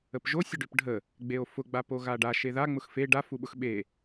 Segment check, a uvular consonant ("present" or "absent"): absent